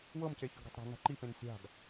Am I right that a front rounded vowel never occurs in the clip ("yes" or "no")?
yes